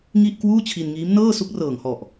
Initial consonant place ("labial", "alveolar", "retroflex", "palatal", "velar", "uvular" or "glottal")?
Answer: velar